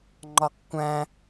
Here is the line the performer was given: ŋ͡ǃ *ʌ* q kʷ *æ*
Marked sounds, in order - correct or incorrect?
incorrect, incorrect

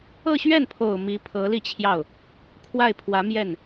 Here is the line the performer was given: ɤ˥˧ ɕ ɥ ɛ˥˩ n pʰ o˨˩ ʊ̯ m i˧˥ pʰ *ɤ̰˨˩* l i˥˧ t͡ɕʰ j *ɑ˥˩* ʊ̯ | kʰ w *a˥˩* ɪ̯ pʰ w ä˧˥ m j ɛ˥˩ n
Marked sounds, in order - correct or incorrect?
incorrect, correct, correct

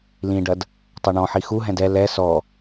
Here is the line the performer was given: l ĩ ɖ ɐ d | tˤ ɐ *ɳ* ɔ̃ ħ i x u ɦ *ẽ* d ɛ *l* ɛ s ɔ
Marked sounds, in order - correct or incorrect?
correct, incorrect, correct

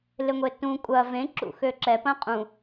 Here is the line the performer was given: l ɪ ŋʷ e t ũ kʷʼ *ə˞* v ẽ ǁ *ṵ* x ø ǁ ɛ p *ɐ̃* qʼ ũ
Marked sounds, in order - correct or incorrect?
incorrect, correct, correct

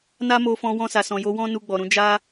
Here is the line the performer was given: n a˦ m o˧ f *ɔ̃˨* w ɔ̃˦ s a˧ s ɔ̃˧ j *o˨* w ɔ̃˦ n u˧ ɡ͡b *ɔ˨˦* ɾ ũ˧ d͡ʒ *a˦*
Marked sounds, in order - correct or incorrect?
incorrect, incorrect, incorrect, correct

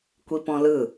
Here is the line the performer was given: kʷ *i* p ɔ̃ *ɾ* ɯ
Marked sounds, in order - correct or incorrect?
correct, incorrect

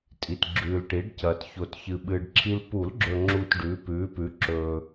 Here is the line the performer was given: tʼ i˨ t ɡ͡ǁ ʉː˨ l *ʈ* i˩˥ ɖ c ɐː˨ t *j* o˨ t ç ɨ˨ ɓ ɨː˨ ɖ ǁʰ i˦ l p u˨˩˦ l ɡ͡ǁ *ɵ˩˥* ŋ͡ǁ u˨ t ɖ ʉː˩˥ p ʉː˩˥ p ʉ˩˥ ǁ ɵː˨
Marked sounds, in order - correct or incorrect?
correct, incorrect, incorrect

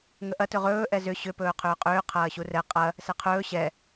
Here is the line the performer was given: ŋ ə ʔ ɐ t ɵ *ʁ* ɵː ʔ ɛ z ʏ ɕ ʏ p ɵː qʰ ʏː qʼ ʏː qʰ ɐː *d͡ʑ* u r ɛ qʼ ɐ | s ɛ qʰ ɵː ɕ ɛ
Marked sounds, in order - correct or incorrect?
correct, incorrect

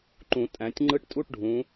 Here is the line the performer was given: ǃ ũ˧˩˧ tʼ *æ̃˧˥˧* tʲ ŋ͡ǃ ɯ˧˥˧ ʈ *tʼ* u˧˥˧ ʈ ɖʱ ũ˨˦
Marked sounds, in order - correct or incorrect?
incorrect, correct

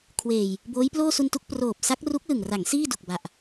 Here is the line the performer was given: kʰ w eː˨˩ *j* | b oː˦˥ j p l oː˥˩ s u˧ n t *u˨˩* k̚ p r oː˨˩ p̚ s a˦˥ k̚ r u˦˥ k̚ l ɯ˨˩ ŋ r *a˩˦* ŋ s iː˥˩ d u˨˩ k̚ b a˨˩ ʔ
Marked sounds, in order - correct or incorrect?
correct, incorrect, correct

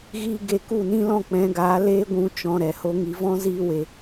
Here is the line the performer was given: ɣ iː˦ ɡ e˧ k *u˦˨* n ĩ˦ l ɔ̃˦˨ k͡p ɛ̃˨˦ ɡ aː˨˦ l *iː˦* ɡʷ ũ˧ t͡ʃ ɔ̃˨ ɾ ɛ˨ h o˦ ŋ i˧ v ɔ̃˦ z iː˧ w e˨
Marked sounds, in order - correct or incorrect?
correct, incorrect

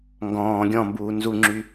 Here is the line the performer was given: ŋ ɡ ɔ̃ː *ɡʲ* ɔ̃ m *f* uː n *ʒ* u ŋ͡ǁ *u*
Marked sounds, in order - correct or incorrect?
correct, incorrect, incorrect, incorrect

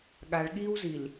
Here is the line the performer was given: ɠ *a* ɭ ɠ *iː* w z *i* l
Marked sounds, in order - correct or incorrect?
correct, correct, correct

